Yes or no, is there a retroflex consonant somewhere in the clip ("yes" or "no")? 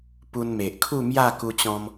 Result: no